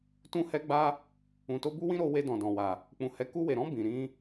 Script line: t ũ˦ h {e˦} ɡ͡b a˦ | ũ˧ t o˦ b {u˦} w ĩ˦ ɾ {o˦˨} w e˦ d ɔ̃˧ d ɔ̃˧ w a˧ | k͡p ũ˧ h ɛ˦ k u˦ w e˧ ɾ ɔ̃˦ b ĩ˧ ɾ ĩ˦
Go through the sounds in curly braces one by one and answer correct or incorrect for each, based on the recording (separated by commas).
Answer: incorrect, correct, incorrect